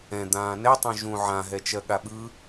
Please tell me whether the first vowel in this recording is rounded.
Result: no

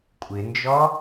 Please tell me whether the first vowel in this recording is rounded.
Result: no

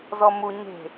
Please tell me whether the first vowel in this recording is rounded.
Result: yes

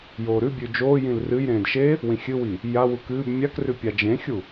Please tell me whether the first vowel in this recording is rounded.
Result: yes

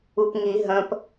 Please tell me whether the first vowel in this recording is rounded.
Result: yes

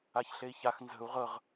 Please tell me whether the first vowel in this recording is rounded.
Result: no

